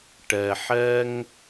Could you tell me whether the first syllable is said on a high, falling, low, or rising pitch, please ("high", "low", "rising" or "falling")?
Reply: low